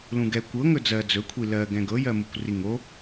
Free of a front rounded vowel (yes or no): yes